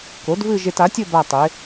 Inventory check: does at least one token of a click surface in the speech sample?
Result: no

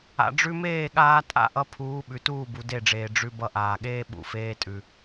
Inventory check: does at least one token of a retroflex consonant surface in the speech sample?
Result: yes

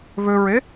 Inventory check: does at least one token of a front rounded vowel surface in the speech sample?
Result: yes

